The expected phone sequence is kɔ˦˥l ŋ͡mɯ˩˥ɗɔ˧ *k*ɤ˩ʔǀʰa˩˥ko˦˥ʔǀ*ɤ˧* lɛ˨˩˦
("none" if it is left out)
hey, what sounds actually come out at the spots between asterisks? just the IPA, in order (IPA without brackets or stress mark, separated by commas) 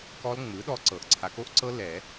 ǀ, ɤ˦˥